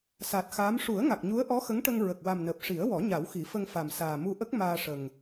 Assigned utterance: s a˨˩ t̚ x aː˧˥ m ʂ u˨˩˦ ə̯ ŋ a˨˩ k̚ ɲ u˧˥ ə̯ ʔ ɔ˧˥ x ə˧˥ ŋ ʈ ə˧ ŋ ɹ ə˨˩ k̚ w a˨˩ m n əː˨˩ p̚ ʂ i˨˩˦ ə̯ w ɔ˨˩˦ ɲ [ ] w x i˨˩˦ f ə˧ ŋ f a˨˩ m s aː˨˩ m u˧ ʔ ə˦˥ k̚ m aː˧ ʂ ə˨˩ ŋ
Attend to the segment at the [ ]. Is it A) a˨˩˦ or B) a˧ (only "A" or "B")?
A